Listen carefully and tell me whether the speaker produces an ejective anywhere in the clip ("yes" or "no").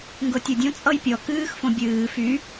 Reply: yes